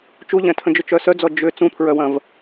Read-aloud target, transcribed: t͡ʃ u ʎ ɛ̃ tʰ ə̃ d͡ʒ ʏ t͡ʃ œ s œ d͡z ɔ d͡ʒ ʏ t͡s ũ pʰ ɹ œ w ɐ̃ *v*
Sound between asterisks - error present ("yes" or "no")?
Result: no